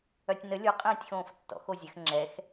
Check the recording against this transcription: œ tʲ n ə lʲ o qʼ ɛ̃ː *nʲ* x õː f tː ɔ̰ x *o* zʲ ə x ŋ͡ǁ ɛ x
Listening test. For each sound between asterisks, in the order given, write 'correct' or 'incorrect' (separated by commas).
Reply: incorrect, correct